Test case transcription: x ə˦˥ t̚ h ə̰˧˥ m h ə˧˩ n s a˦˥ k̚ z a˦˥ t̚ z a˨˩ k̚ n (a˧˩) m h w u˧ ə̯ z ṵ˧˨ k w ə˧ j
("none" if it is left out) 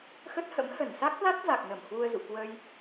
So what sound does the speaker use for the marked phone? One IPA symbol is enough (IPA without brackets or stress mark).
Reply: ə˧˩